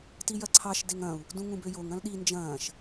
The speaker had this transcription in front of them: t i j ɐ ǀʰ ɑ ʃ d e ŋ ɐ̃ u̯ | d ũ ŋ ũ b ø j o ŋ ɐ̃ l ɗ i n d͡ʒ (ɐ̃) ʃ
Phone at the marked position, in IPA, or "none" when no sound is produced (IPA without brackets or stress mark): ɐ̃ː